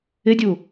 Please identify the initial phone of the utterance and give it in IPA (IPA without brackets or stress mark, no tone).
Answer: ɪ